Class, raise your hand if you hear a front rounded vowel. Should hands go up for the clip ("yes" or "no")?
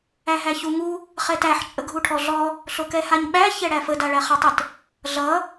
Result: no